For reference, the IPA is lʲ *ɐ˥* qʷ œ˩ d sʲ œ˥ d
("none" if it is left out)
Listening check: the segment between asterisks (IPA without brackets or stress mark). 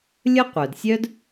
ə˥